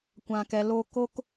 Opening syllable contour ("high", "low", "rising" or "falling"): low